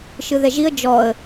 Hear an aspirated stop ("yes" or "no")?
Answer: no